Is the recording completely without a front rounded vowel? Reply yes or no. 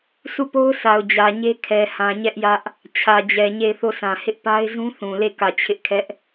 yes